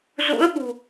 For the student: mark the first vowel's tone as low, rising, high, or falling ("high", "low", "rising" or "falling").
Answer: rising